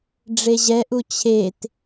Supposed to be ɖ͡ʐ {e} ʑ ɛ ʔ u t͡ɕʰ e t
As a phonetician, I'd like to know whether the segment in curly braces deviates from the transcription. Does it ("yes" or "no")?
no